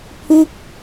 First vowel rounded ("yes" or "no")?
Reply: yes